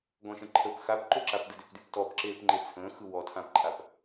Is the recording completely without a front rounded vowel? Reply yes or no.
no